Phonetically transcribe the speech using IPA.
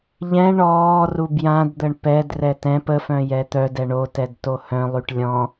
ʎɛ̃ ɳɔː rubjãdd̪əɳ pɛd rɛtɛ̃p əfœ̃ jɛt̪œdɛ ɳotɛdto hœ̃lˠyʈ lʲɔ̃

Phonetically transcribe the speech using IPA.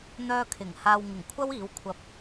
n̪œː˧ kʰɪ˨˩ŋ haː˨wŋɪ˨˩ŋ kʷʰɐ˥wiː˨˥w kʷʰɐ˧p̚

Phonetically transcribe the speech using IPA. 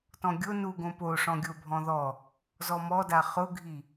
tɔ̃ɡʲo nuɡõ poʂɔ̃ɡʲo bʱɔ̃ðɔ | zɔmɔda χʊɡʱi

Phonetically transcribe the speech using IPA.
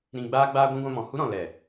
ɾĩ˧ ɡ͡baː˦ɡ͡baː˦ɡʷĩ˦ ɡʷã˧mɔ̃˨hu˦ɾɔ̃˨ lɛ˨

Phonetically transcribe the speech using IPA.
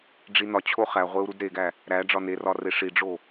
ɖ͡ʐinɒt͡ɕʰo χæʁʷeu̯ ɾudɾeɡæ | ɾæ ɖ͡ʐɒnerɒ reʂiɖ͡ʐo

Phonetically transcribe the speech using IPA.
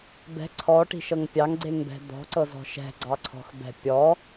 bɛ̤ ǀʰɔʈi̤ʃɤŋ pʲɑŋɡ͡ǀeŋbɛ̤ d̪ɔ̤ǀɤzɔ̤ ʃɛ̤ɡ͡ǀɑǀʰɔ̤xbɛ̤ pʲɔ

